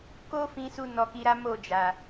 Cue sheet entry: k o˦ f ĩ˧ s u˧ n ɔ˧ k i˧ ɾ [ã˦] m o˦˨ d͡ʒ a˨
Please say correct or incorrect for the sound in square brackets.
incorrect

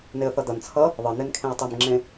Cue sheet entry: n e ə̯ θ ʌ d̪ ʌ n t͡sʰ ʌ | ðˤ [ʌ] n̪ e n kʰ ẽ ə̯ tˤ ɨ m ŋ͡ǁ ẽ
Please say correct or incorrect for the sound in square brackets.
correct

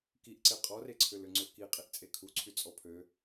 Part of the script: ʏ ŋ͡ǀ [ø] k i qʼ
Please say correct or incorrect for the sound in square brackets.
correct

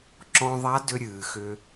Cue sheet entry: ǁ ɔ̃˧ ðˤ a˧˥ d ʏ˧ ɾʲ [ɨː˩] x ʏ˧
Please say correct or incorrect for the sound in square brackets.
correct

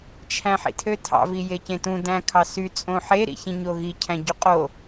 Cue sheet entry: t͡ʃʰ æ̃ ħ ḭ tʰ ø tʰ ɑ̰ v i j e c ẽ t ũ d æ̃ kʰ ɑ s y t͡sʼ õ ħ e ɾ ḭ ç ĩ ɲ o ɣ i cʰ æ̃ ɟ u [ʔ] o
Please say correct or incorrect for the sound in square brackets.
incorrect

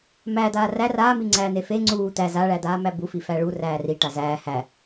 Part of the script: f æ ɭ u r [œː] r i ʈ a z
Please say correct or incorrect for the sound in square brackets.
incorrect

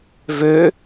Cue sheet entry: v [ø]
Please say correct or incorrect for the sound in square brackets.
correct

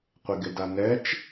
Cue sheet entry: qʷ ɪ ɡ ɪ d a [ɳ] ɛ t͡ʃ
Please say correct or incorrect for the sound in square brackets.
incorrect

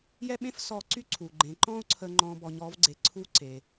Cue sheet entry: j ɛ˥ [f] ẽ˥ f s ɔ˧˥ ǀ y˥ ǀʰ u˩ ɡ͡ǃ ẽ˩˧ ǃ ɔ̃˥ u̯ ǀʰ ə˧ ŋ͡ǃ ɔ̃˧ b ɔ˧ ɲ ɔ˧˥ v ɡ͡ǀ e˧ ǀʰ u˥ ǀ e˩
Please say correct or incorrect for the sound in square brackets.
incorrect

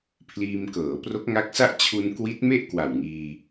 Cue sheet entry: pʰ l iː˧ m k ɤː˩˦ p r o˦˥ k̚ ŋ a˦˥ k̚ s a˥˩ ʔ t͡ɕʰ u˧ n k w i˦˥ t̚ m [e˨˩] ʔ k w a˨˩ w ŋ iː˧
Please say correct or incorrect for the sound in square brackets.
incorrect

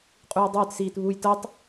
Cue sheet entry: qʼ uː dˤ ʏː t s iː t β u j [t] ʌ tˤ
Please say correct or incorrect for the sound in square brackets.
correct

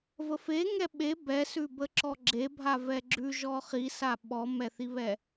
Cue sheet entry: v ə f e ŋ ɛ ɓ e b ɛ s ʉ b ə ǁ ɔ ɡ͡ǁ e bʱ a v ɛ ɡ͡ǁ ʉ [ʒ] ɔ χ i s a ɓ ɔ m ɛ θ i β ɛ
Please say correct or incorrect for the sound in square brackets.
correct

